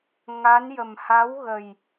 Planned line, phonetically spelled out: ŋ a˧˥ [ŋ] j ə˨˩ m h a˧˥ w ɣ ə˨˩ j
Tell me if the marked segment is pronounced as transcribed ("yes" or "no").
no